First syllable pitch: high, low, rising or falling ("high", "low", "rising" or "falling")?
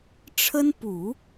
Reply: high